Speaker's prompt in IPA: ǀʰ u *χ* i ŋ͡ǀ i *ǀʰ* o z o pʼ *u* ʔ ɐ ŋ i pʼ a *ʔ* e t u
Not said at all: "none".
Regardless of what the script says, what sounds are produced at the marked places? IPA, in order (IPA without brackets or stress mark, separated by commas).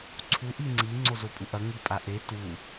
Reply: ʔ, ŋ͡ǀ, u, ʔ